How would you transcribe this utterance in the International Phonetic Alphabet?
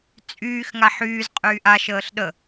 t͡sʼ yː x ŋ a ħ yː z qʼ yː ʔ a ʃ əː ɬ ɗ ə

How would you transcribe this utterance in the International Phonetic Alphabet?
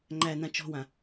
ŋ͡ǃ æ n ã t͡ʃ ɔ̤ w ã

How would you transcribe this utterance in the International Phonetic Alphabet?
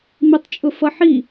m i tˤ t͡ʃʼ ʊ f ʌ ħ i

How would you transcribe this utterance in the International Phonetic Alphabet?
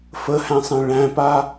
f ə h æ̃ sˤ ẽ ɭ æ̃ p a

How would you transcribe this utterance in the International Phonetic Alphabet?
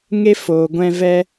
ŋ e˦ f oː˨ ɡʷ ɛ̃˧ v ɛ˦

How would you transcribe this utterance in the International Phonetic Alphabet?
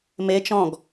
m e t͡ʃ ɔ̃ ɡ

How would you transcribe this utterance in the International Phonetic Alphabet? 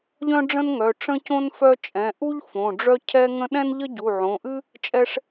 ʎ œ̃˥ ɖ͡ʐ ə̃˥ n ŋ œ˩˧˩ ʈ͡ʂ ə̃˥ c õ˥ n f œ˥ t͡ʃʼ ɛ̃˩˧˩ ʔ u˥ ʎ f õ˩˧˩ ɖ͡ʐ œ˥ cʰ ɛ˥ ŋ ə̃˥ ɗ ɛ̃˥ n ʎ ə˥ ɟ u˩˧˩ ʕ õ˩˧˩ ʔ ɨ˥ | t͡ʃʼ ɛ˥ ʂ

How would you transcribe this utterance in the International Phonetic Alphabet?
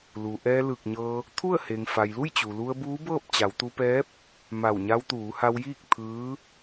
l uː˩ ʔ ɛː˧ l ɯː˧˩ k̚ ɲ ɤː˧ | t̪ʰ u˥˨ ə̯ h e˩ ŋ f a˩ j l u˥˨ j t͡ɕ u˩ l u˧ ə̯ b uː˧˥ b ɤː˥˨ p̚ t͡ɕ a˩˧ w t̪ u˧ p ɛː˧˥ p̚ | m a˧˩ w ɲ a˧ w t̪ uː˩˧ h a˧ w j iː˥˨ k̚ t̪ʰ ɯː˧˥

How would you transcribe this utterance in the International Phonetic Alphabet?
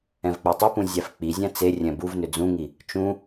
ɛ̃ v k͡p æ tˤ ʏ p ũ zʲ æ f k͡p i zʲ æ̃ t͡s e rʲ ɛ̃ b u v n ʏ d͡z ũ ŋ i | t͡ʃ ũ

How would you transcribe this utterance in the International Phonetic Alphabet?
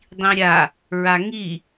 dˤ ĩ ɾʲ a | ɹ a ŋ i

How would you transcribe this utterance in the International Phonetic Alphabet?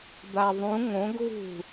d̪ a ðˤ ũ ŋ õ ɡ ɣ ṳ

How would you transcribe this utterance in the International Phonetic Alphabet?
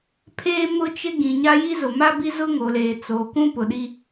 pʰ eː˦ m ʊ˦ t͡ʃ ɪ˦ ɡ ĩ˨ ɲ a˦ j i˦ z ʊ˨ m a˦ b i˦ z ʊ˦ ŋ o˨ l eː˨ t͡s oː˨ k ũ˦ p ʊ˨ ɗ i˦

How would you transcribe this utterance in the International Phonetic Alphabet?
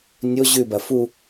nʲ o ʑ ʉ b ɐ f u

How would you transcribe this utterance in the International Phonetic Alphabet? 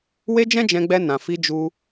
w e˦ d͡ʒ ɛ̃˦ d͡ʒ ɛ̃˧ ɡ͡b ɛ˧ n ã˨ f i˧ d͡ʒ u˧

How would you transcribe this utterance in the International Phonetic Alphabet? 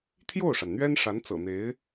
t̪ʰ j o˥˩ ʊ̯ ʂ a˩ n n̪ ɥ ɛ˥ n ʂ a˧˥ n t͡s ɤ̰˨˩ n̪ e˧˥ ɪ̯

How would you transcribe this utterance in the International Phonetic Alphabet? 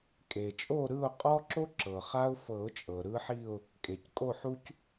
kʼ e˩ t͡ʃʼ o˦˨ ɾ ɯ˦˨ ʊ̯ qʼ ɔ˦ ǁ o˦ ǁ ɤ˩ χ a˦ ʊ̯ f ɤ˨˩˦ ʊ̯ t͡ʃʼ ɤ˩ ɾ ɯ˦ ħ i˦˨ ʊ̯ | kʼ e˩ c kʼ o˦˨ ħ u˦ c

